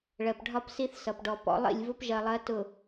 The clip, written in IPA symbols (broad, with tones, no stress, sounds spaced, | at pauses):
ɭ ɜ˨ p ɖʱ ɒ˦ p s i˦ θ s ʌ˨ p ɖ ɔ˨ p ɔ̰˦ lˠ ḭ˦˨ lʲ v ʊ˦ p ʒ ɜ˨ lˠ ɜ˨˦ t ʊ˨